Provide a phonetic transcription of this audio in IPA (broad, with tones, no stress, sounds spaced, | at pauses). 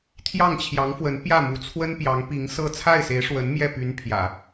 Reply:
t̪ʰ j ɑ˥˩ ŋ t͡ɕʰ j ɑ˧˥ ŋ f w ə˧˥ n p j ä˥˩ m u˧˥ t͡sʰ w ə˥ n p j ɑ˧˥ ŋ p i˧˥ ŋ s ɤ˥˧ t͡sʰ a˥˩ ɪ̯ s e˧˥ ɪ̯ ʂ w ə˧˥ n m j ɛ˥˩ p y˧˥ n pʰ j ä̰˨˩˦